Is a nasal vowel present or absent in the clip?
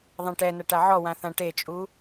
present